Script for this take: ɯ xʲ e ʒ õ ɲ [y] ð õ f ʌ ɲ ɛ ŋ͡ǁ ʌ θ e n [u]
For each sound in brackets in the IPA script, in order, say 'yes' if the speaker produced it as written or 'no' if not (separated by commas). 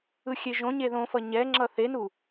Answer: no, yes